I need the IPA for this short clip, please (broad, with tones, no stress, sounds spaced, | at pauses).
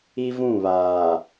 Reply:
i˦ v ũ˦˨ β aː˨